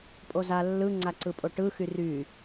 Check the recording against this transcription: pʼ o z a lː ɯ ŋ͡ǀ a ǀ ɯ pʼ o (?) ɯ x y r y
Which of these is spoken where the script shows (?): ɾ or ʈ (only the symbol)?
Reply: ʈ